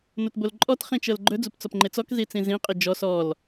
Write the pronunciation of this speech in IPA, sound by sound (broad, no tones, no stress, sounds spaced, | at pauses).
n o t b o l ǃʼ ɔ t χ ĩ t͡ʃ ɤ l ɡ͡ǃ ɵ d͡z u p t͡s ɔ p ŋ͡ǃ e t͡s ɔ k z i t͡s ĩ z ĩ qʼ i d͡ʒ ɔ s ɔ l